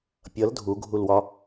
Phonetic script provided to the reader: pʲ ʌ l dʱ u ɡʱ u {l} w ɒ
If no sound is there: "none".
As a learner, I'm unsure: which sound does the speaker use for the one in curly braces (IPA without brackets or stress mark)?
l